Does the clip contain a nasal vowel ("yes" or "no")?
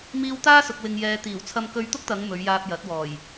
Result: no